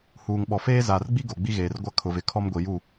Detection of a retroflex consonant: absent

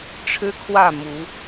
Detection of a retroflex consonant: present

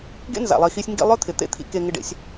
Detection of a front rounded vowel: present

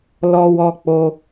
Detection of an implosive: absent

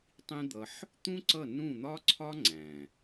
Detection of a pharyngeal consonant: present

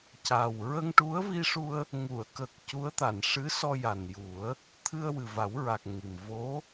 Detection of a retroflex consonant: present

